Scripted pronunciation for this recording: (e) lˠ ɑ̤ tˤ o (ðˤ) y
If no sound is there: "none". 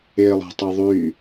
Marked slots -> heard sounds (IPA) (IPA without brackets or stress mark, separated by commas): e, ðˤ